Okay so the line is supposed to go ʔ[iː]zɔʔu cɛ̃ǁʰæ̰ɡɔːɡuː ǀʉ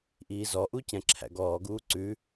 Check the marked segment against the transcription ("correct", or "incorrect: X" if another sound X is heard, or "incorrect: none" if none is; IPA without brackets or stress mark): correct